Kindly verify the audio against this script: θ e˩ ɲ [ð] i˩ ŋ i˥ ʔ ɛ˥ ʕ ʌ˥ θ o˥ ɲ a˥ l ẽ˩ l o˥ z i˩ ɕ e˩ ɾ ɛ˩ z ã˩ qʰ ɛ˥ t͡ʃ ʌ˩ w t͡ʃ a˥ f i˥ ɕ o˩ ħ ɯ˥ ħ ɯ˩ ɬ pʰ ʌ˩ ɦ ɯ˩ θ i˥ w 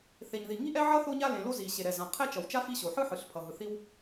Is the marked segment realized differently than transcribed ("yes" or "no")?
no